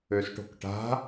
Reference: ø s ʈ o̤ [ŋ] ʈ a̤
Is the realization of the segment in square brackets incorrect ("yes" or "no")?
yes